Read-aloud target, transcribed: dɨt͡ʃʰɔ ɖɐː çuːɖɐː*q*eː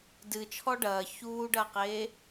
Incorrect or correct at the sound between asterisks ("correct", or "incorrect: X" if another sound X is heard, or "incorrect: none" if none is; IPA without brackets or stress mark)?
correct